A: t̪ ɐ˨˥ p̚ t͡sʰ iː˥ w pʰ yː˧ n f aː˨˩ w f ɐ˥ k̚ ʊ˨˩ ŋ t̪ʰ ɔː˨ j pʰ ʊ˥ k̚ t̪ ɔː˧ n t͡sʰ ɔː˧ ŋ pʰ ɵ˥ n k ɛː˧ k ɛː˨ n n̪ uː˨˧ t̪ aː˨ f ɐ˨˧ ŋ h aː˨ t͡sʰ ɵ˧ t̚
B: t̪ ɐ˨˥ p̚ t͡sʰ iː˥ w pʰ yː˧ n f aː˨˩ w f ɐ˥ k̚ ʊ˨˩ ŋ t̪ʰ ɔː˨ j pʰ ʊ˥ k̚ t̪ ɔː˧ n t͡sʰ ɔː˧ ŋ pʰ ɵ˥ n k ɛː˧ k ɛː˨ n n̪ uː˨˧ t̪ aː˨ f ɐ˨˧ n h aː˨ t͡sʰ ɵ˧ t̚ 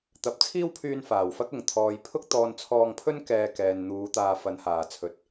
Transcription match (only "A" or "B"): B